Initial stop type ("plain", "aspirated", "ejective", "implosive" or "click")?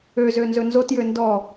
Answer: plain